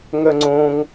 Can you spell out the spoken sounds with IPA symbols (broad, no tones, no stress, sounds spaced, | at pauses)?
ŋ œ ŋ͡ǀ õ ŋ